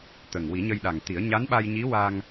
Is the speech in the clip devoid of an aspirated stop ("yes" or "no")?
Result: yes